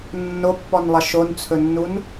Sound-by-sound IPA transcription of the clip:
nːopːɔnlˠʌ ʃont͡sʰɵnːun

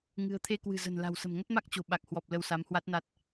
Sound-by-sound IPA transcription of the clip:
ŋɨ̤˨˩ə̯t̪ʰe˧ kwɨ̤˨˩ zə̤˨˩nla̤˨˩wsə̤˨˩m ŋə˦˥t̚ma˦˥k̚ t͡ɕo̤˨˩ ɓa˨˩k̚hwɔ˨˩p̚ lə˧wsa˨˦mhwa˦˥t̚na˦˥t̚

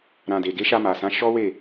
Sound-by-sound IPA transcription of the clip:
ɾã˨de˨ɡe˨˦ ʃa˧ma˨sã˨˦ ʃɔ˦we˦˨

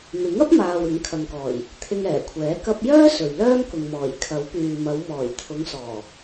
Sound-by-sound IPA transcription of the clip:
mɪ˨˥ŋɐ˥p̚ maː˨w ɪ˨˥ŋkʰɐ˨ŋkɔː˨˩j | t̪ʰɪ˧ŋɛː˨˩kʷʰɛː˨˥ kɐ˧p̚jœː˥ sɵ˨ɥlœː˥mkʊ˨ŋmɔː˨˩j kʰɐ˨˥wpyː˨mɐ˨˧w mɔː˨˩jt̪ʰʊ˨˧ŋsɔː˨˩

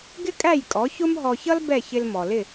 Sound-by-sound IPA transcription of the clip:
ɡɪ˥kʼæ˥˩jkʼɔ˩˥ çʊ˥mɦɔ˧çʌ˥l bɛ˥˩çɪ˧l mɔ˩lɪ˥˩

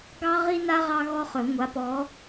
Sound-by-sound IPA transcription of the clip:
ɡɑ˥ʁi˥na˥ ʁɑ˥ɣɔ˥χɵ˨˩˦ ŋʷa˨˥pɔ˨˥

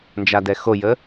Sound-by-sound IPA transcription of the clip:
nd͡ʒadɛxojə

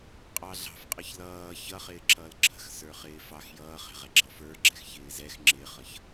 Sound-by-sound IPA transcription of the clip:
qʼɑɮɑ̤fqʼʌç lʌː çʌχɪː ǁʰʌːlǁʰə̤x sə˞χɪːfɑx jʌːχɛ̤ʁɛɡ͡ǁɑf ə˞ɡ͡ǁɛx çɪːzɛx ŋ͡ǁɪχʌç

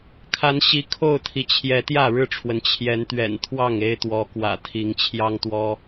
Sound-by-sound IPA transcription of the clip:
kʰa˨˦nɕi˨˦kʰo˥˨ʊ̯t̪ʰi˩ t͡ɕʰjɛ˨˦t̪jä˥˨ ɻɻ̩˥˨ʈ͡ʂʰwə˩n t͡ɕʰjɛ˨˦nt̪ɥɛ̰˨˩nt̪ʰwɑ˥˨ŋ e˦ɪ̯t̪wɔ˨˦ kwä̰˨˩t̪ʰi˨˦ŋ t͡ɕʰjɑ˦ŋt̪wɔ˦

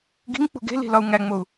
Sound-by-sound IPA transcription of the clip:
ɡi̤ŋk͡pṳ ɡe̤li̤ lɒu̯ŋæŋ͡mou̯

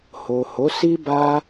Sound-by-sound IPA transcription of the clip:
ho˨ ho˨˦si˦ba˦

